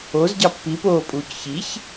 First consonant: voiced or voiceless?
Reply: voiced